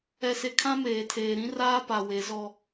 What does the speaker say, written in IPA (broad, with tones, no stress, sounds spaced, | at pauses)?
ɛ˨ s e˨ kʰ ã˦ m eː˨ tʰ eː˨ ɾ ĩ˦ r aː˦ p a˨ w e˨˦ z ɔ˦